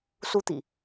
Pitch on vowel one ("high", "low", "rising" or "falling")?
high